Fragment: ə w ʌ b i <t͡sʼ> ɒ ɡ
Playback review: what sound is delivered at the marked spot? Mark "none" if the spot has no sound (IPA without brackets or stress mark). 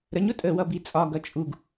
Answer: t͡sʼ